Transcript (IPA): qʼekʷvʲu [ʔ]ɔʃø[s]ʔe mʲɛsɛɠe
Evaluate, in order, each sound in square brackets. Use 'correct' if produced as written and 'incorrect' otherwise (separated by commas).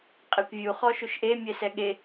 incorrect, incorrect